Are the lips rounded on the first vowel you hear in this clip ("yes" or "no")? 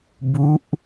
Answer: yes